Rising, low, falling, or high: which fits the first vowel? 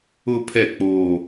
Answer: high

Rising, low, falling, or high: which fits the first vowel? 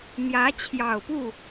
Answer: rising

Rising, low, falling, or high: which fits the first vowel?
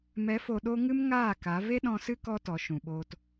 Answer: rising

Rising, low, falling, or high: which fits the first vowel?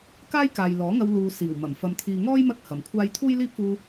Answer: high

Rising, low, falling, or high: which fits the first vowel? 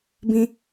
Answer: high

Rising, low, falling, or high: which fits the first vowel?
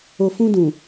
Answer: low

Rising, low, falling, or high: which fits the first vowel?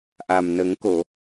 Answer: low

